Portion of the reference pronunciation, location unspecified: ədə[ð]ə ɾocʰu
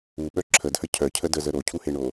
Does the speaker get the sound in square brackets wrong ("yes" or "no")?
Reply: yes